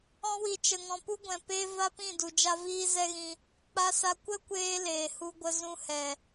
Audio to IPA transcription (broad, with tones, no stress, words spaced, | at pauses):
ɔ̃˧wi˨ t͡ʃə˨ŋɔ̃˨pu˦ɡʷɛ̃˨ pe˧ va˦pĩ˦˨ du˨d͡ʒa˦viː˦ zɛ˦ɣĩ˧ | k͡pa˧sa˧ kʷə˦kʷeː˧ leː˨hu˧ɡʷə˧ zũ˧hɛ˨